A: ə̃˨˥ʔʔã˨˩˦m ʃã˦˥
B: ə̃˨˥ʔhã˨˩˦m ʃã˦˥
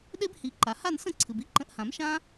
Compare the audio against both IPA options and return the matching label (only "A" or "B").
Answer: B